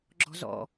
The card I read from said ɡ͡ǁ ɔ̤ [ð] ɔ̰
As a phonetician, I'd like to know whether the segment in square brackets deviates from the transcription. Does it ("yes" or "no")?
yes